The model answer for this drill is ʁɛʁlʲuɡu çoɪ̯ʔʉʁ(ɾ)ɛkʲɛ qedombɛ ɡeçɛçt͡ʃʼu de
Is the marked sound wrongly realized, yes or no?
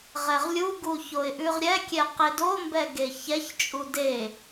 yes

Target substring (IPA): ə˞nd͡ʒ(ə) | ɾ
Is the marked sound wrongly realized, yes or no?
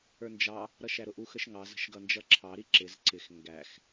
yes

